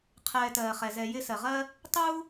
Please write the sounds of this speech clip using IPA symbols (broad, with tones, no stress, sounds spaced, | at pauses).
qʰ ɛː˨ t ɜː˩ χ ɛ˩ z ɛ˨ j ɪ˦ s ɜ˩ ʁ ɜ˦ | tˤ u˥